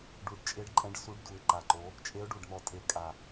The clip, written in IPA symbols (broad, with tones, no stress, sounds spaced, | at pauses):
ɖ u˧˩ ɖ t͡ʃʼ e˧˥ ɖ ǃʼ ɛ̃˧˥ ɖ s u˧˥ ɖ d u˧˩ ɪ̯ ǃ a˧˩ ǃ o˧˥ | t͡ʃʼ e˧˥ ʊ̯ ɖ u˧˩ ɖ n̪ ɔ˧˩ tʼ e˧˥ kʼ a˧˩